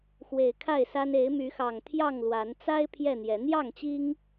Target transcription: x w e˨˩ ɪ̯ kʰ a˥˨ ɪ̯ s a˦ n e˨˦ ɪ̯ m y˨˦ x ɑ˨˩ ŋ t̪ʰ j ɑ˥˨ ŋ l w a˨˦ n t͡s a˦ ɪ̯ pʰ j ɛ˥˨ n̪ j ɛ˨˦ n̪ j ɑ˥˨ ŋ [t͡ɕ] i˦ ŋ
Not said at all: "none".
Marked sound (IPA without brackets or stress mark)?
t͡ɕ